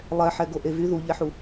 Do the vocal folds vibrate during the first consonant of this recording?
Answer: yes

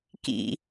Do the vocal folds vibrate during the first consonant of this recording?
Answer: no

